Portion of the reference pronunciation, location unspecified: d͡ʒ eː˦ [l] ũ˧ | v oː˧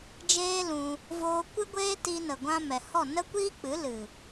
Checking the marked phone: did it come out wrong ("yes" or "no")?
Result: no